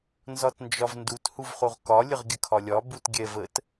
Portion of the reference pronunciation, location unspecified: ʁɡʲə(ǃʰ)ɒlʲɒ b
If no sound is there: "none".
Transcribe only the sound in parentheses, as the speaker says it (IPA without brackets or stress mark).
kʰ